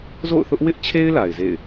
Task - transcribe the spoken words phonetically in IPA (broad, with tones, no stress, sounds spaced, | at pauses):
z o̰˦˨ ʊ̯ θ ʊ˦ ʔ w ɪ˦ ʔ t͡ɕʰ e˦ ɪ̯ l a˨ ɪ̯ z ḛ˦˨ ɪ̯